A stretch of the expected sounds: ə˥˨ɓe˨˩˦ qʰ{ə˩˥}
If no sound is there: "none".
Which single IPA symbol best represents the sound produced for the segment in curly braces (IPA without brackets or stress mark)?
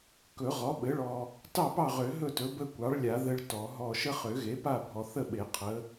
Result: ə˩˥